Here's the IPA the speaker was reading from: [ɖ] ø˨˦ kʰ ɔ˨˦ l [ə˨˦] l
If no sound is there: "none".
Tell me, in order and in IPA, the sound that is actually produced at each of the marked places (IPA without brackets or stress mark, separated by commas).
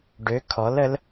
ɖ, ə˨˦